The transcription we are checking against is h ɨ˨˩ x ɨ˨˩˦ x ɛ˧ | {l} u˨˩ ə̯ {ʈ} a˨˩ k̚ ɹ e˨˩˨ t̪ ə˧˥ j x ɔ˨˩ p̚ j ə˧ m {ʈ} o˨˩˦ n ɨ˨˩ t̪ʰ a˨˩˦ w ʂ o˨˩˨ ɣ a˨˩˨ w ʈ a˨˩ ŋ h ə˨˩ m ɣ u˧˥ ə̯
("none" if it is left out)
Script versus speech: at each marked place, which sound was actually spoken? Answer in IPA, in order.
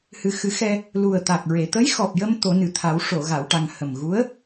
l, t̪, t̪

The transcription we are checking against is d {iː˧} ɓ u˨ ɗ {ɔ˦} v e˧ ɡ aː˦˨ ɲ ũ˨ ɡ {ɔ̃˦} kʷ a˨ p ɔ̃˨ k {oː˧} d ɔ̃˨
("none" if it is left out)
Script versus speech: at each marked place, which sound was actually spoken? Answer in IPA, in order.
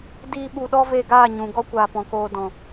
iː˧, ɔ˦, ɔ˦, oː˧

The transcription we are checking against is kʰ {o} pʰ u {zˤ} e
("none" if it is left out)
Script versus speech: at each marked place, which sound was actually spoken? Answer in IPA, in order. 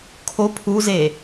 o, z

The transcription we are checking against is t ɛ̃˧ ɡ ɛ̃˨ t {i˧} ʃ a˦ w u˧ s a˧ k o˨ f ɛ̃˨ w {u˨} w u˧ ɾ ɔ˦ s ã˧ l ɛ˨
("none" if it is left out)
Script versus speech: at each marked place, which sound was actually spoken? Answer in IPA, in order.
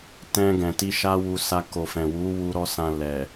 i˧, u˨˦

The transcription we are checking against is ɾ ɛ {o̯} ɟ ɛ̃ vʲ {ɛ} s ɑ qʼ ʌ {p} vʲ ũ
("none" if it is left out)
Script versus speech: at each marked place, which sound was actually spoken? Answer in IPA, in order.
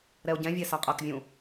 o̯, ɛ, k

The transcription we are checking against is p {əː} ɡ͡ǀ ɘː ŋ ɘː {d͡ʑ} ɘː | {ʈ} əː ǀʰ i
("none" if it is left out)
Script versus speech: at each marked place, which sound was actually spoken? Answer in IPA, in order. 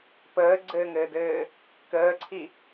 əː, d, k

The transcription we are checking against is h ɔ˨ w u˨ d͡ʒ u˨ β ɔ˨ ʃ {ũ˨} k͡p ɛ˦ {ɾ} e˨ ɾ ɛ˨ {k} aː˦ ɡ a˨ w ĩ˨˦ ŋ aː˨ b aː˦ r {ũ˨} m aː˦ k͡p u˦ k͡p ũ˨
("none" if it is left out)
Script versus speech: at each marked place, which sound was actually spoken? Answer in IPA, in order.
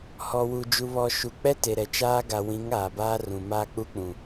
u˨, t, t͡ʃ, ũ˨

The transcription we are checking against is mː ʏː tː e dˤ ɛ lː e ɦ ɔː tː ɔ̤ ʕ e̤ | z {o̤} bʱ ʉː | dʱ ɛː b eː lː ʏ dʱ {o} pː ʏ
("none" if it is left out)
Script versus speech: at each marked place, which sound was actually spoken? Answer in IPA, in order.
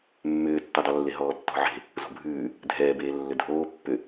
o̤, oː

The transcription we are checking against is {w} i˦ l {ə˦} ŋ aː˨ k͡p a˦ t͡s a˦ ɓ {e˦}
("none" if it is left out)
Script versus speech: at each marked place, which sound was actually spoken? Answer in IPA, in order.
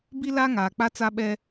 b, a˦, ɛ˦

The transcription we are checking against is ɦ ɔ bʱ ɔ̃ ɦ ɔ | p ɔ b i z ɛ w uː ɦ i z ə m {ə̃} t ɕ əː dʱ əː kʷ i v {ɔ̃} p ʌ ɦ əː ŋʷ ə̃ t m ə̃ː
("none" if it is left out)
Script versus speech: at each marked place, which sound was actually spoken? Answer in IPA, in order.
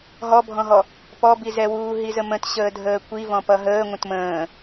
ə̃, ɔ̃

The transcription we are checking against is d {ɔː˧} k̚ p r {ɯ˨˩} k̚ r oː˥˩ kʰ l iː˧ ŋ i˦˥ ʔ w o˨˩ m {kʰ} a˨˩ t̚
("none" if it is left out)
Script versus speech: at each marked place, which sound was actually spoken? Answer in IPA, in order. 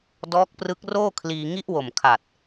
ɔː˦˥, ɯ˦˥, kʰ

